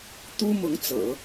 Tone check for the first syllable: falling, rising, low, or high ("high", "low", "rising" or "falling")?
high